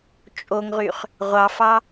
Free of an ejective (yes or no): no